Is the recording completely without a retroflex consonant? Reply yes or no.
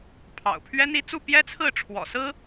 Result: no